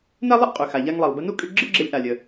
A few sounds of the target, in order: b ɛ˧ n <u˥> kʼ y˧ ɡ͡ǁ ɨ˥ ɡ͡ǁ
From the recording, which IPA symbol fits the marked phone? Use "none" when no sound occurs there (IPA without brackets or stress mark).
u˥